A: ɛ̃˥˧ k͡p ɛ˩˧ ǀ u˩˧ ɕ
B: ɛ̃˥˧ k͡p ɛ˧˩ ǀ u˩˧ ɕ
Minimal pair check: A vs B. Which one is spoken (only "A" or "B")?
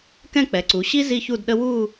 A